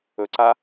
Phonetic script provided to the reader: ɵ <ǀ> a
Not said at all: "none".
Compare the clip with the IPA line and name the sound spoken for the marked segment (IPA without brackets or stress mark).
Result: ǀ